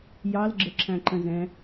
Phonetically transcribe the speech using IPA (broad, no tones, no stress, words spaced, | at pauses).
jɑlɡ͡ǁə ǁʰæ̃ǃə̃zɛ̃